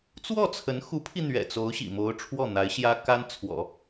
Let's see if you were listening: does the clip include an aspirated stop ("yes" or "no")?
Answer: yes